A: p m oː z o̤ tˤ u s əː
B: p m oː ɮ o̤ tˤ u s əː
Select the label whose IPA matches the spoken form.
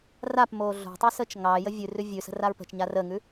B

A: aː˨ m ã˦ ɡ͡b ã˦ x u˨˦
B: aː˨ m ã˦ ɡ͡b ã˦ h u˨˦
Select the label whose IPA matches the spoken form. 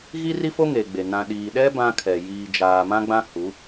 B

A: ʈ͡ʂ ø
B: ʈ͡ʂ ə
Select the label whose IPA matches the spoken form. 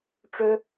A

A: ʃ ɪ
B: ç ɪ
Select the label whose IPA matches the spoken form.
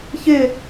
B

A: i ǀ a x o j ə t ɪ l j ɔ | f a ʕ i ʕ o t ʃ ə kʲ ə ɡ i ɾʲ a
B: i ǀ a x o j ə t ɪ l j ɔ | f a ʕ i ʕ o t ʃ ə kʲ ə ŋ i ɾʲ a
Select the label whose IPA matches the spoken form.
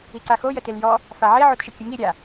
B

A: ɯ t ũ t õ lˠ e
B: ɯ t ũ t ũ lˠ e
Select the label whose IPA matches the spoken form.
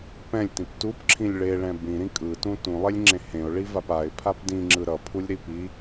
B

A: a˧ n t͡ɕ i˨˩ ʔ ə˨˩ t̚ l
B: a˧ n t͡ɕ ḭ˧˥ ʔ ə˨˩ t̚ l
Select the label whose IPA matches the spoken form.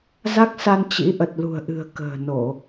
B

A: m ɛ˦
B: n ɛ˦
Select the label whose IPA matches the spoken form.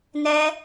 B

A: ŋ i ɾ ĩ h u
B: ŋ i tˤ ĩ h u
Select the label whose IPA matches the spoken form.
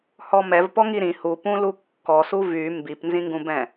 A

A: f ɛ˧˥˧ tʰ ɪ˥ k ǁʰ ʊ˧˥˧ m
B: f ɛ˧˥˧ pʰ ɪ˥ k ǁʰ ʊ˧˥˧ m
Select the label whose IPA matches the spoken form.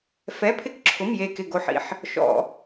B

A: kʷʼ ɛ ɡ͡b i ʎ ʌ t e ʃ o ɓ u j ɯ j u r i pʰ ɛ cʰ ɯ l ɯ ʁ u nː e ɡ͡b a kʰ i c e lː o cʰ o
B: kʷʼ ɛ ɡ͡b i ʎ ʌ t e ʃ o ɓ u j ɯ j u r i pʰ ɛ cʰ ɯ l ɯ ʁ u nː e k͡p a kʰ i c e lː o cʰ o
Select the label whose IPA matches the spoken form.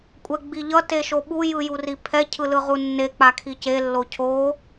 B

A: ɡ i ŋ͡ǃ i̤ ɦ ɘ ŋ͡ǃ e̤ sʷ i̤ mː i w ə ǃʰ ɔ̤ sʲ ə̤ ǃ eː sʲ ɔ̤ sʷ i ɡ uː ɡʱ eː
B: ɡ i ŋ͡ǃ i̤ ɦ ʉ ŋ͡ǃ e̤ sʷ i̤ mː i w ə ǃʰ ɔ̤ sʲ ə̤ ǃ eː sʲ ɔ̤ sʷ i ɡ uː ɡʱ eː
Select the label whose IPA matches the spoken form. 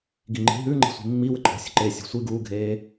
B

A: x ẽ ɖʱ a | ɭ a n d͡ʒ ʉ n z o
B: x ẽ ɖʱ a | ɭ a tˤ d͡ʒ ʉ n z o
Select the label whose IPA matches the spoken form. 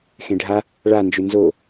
A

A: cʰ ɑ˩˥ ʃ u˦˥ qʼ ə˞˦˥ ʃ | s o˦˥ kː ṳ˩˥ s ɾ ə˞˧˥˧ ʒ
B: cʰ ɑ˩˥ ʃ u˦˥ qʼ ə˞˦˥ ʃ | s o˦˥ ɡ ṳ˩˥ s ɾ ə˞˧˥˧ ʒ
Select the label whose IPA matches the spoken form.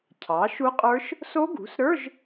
B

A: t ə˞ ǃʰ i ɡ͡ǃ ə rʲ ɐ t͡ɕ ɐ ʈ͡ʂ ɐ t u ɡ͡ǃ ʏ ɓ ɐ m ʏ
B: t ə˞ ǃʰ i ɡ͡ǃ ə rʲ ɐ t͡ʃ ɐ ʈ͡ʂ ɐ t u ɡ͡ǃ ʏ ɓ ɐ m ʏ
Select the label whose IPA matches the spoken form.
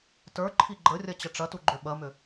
A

